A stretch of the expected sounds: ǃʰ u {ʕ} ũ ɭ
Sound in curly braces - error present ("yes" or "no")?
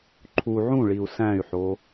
no